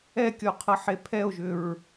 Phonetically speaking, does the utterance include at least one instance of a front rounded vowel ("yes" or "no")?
yes